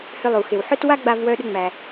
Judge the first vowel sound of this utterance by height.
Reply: high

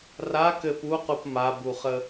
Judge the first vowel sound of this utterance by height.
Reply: low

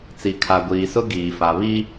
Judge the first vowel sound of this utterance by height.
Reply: high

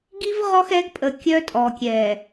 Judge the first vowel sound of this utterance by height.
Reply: high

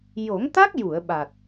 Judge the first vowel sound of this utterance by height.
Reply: mid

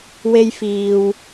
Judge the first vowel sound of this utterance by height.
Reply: mid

